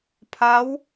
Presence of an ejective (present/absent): absent